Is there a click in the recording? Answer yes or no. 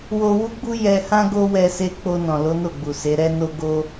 no